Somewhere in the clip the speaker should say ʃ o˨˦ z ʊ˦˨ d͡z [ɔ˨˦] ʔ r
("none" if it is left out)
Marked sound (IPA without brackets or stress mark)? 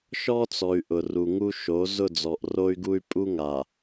ɔ˨